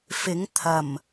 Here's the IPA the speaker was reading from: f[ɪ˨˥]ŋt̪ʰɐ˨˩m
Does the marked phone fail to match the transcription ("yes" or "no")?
no